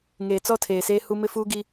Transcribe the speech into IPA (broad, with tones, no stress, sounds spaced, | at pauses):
ŋ eː˨ t͡s ɔ˦ tʰ eː˨ s eː˦ h u˦ m ɪ˦ f uː˦ ɡ i˦